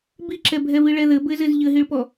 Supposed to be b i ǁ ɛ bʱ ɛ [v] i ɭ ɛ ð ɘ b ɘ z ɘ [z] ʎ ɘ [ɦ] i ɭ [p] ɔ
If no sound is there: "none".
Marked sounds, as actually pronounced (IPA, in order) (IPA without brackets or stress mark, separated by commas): v, z, ɦ, p